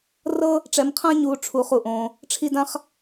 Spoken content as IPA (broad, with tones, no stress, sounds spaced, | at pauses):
r ɤ˦ | ʈ͡ʂ ɛ˧ m qʰ ã˦ ɲ uː˧ ʈ͡ʂʰ uː˧ χ u˨ ʔ õː˧ | ʈ͡ʂʰ i˦ d ã˦ χ